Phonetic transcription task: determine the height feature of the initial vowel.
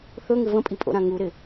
mid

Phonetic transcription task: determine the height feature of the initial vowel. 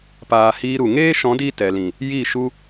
low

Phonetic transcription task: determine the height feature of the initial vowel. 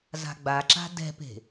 low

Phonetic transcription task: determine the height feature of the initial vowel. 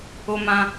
mid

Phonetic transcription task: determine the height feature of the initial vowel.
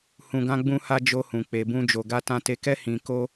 high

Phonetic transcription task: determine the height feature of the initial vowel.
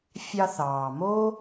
low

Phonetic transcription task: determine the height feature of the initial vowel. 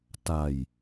low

